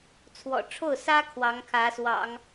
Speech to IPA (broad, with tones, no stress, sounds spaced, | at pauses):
t͡sʰ w ɔ̰˨˩ ʈ͡ʂʰ o˥˩ ʊ̯ s ä˥ kʰ w ɑ˧˥ ŋ kʰ ä˧˥ s w ɑ̰˨˩˦ ŋ